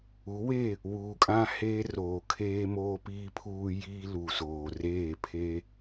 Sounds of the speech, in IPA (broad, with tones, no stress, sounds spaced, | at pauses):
u˨˦ w e˦˨ | w uː˨ kʼ ã˦ h eː˦ r oː˨ kʰ eː˦ m oː˦ p iː˦ pʰ uː˦ j iː˦ l u˨ s oː˨ r eː˦˨ pʰ e˦